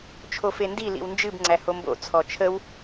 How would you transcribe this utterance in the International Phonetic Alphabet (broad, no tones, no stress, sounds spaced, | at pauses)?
t͡ʃʰ o f e n d i l ḭ w n d͡ʒ ɨ b ŋ͡ǀ æ h o m b o̰ t͡sʰ ɔ t͡ʃʰ ə w